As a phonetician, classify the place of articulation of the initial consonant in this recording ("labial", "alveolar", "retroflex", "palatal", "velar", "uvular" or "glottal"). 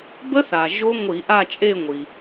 labial